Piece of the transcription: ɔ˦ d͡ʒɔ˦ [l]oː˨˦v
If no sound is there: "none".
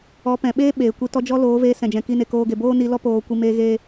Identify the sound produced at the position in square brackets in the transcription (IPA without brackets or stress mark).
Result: l